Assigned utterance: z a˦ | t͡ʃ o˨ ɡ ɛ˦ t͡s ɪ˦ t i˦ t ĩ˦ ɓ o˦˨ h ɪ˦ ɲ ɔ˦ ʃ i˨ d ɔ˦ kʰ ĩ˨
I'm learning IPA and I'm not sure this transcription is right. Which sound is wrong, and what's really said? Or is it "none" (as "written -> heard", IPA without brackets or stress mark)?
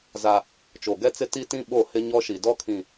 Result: none